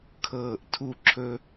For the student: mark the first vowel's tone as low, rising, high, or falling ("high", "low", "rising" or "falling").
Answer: falling